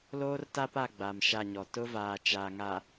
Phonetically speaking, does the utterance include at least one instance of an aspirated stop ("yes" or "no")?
no